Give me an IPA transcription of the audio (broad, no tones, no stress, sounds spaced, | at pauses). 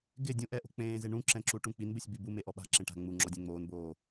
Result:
ɡ ɪ dʲ ũ ʔ ɛ ʔ o̤ k͡p ẽː z ɪ ɳ ũ ǁ ɛ̃ ǁ u ʈ ũ k͡p i n b ɪ sʲ b i b u m e ʔ ɔ ɓ a̤ ǁ ẽ ʈ a̤ ŋ͡m u ŋ͡ǁ ɔ dʲ ɛ̃ ŋ͡m oː n b oː